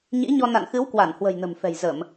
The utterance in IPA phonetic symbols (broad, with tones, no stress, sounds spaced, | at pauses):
ɲ ḭ˧˥ ɲ ɔ˧ n a̰˧˨ n x ɨ˨˦ w k w a˧˩ n h w ə̤˨˩ j n ə̤˨˩ m f ɛ̤˨˩ j z ə˧˩˨ m